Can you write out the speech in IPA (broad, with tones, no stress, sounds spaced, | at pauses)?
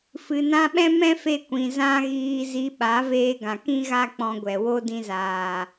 f ɨ˨ n ã˧ ɓ ɛ̃˦ m ɛ̃˦ f e˧ kʷ ĩ˨ z ã˧ ɣ iː˧ z i˧ ɓ a˨˦ v eː˧ ɡ ã˨ k ĩ˦ ɣ a˦ k͡p ɔ̃˧ ɡʷ ɛ˨ w o˦ d ĩ˧ z aː˨